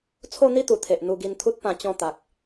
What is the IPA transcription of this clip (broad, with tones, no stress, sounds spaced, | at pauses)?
t͡sʰ o˥˧ n̪ i˥˧ t̪ u˨˩ t̪ʰ e˨ ʔ n̪ u˧ ɡ i˧ n t̪ʰ u˦ t̚ p ã˧ t͡ɕ ɔ̃˧ t̪ a˨ k̚